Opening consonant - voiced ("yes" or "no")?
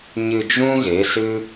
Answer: yes